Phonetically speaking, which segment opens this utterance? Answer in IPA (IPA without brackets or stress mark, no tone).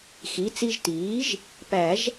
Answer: x